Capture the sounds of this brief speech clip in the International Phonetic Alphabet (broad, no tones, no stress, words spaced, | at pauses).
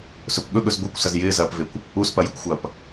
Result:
sɵpɠɵɠɵz ɡʷekʷsɐz jɪːzɐːpvekʷ | uspɐjɵkʷxʷɐːp